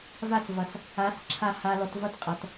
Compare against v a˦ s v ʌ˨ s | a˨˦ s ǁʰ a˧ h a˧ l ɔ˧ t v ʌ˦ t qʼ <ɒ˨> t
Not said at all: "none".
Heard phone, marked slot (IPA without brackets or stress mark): ʌ˨